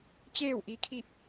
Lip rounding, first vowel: unrounded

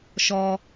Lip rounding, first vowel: rounded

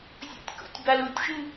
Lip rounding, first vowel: rounded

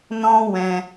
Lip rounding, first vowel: rounded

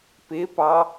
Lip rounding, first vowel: unrounded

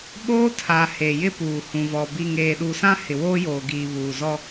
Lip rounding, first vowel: rounded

